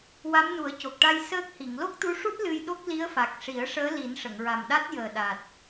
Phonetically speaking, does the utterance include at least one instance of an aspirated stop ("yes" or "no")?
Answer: no